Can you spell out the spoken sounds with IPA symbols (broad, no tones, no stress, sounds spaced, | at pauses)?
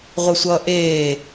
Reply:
ʁʷ ɘ sʷ ʌː ʔ eː